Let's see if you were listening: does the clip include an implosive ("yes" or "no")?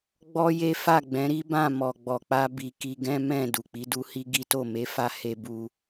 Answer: no